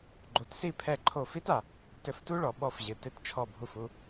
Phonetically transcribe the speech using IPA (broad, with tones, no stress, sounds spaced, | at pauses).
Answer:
ɡ͡ǃ o˩˥ t s i˥˩ pʰ ɛ˥˩ ǃʰ o˥˩ f i˥ t a˩ | t ɘ˧ f t u˥ ɭ ɔ˩ ɓ ɔ˥˩ f ʑ ɨ˩ t ɨ˥˩ t t͡ʃʰ ɔ˥˩ bʱ u˥˩ f u˧